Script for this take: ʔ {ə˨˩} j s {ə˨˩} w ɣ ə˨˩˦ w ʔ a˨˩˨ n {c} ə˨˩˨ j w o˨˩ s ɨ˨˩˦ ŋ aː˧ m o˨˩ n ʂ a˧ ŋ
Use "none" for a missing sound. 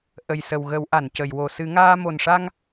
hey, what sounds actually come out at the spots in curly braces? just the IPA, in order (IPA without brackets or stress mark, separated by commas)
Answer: ə˨˩, ə˨˩, c